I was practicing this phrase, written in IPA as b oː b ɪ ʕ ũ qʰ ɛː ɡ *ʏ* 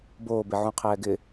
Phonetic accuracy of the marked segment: incorrect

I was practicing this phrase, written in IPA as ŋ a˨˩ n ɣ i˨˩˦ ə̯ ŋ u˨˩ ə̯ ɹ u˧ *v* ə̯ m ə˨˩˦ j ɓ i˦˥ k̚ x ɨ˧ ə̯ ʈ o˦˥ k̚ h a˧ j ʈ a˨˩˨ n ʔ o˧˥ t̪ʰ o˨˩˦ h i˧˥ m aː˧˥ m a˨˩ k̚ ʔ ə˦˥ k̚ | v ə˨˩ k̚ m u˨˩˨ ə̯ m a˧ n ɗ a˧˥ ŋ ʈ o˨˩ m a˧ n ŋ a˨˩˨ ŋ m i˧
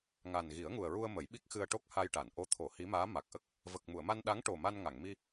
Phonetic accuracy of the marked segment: incorrect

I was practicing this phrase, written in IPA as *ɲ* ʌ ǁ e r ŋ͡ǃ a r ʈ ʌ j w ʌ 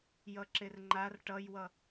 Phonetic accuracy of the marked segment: incorrect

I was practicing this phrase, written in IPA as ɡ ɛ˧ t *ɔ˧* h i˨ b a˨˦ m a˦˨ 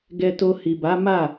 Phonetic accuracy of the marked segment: incorrect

